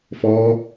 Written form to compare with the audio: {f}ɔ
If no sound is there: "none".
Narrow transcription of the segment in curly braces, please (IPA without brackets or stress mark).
f